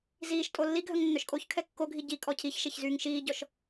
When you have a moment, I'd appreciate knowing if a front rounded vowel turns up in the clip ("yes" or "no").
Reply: yes